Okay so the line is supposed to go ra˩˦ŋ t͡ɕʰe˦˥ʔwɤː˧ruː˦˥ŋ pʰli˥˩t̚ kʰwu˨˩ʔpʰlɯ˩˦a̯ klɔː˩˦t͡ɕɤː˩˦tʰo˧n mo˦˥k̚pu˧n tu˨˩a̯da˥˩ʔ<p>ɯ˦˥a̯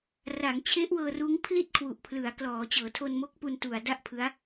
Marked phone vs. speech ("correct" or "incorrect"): incorrect